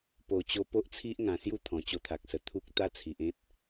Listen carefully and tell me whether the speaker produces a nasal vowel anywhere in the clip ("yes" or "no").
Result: yes